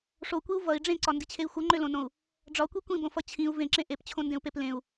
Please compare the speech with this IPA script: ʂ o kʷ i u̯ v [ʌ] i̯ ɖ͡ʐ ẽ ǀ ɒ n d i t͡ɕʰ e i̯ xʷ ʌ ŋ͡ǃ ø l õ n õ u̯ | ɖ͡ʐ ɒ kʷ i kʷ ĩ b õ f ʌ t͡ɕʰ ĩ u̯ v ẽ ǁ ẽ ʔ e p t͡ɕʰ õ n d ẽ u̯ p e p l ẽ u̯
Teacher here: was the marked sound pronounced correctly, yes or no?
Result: yes